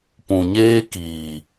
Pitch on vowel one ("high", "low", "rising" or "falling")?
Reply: low